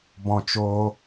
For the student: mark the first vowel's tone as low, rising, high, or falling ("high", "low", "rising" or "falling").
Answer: high